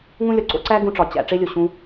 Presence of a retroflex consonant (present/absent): present